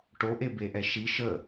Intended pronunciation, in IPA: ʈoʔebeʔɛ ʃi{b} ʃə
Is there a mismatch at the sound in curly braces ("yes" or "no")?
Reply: yes